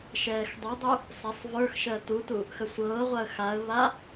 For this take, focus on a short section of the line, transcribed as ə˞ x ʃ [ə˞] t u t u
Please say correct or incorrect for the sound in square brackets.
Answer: incorrect